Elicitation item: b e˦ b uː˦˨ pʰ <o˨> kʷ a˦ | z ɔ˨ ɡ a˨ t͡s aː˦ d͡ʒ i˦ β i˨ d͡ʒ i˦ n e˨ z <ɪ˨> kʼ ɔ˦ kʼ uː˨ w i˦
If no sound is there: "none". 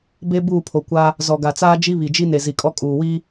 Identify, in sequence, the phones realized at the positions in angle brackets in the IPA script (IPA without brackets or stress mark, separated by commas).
o˨, i˨